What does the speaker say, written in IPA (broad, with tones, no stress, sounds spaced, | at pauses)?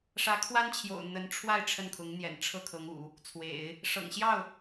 ʂ ä˧˥ kʰ w a˥ n t͡ɕʰ j o̰˨˩ ʊ̯ n̪ ə˧˥ n ʈ͡ʂʰ w a˥˧ ɪ̯ ʈ͡ʂʰ ə˥˩ n kʰ ʊ˧˥ ŋ n̪ j ɛ̰˨˩ n ʈ͡ʂʰ ɤ˥˩ kʰ ɤ˧˥ ŋ ṵ˨˩˦ | t͡sʰ w ḛ˨˩˦ ɪ̯ | ʂ ɤ̰˨˩ ŋ ɕ j ɑ˥˩ ʊ̯